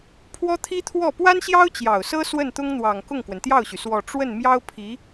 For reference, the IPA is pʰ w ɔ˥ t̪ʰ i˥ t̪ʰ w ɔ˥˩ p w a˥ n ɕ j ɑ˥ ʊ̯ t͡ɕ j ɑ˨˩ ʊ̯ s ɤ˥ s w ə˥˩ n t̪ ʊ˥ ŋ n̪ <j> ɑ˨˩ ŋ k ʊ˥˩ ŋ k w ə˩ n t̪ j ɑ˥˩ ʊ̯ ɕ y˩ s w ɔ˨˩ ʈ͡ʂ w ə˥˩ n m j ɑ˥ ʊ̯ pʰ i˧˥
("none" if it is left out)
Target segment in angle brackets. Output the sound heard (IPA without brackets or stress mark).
w